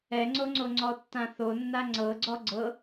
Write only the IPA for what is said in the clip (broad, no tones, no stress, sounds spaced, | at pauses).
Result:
ɛ ŋ͡ǀ o ŋ͡ǀ o ŋ͡ǀ ɔ tː ã θ o nː a ŋ͡ǀ ɤ ɡ͡ǀ ɔ ɡ͡ǀ ɤ